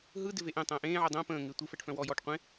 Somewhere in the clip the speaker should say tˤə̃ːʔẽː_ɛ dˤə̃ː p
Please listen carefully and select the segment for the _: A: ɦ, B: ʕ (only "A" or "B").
B